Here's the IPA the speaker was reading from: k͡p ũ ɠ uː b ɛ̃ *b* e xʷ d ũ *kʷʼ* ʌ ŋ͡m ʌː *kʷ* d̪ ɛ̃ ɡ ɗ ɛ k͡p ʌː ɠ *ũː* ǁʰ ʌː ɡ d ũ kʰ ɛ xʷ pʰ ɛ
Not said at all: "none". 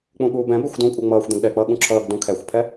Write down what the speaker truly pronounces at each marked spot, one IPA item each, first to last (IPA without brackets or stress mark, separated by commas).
b, kʷʼ, xʷ, ũ